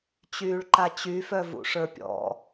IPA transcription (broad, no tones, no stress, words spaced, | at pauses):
t͡ɕyːɭǃat͡ɕy fœvṵʂə˞pʲɔ̰